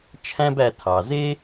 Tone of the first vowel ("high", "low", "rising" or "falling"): high